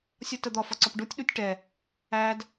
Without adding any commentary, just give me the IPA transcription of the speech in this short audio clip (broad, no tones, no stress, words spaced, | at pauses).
sʲɒtəd̪ɒ fɒǀɒpɖutʲ ɗutʲʈɛ | æd